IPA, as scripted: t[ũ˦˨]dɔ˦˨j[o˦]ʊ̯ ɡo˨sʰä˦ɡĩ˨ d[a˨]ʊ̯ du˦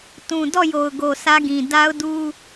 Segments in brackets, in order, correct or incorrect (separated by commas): incorrect, incorrect, incorrect